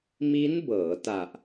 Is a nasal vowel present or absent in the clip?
absent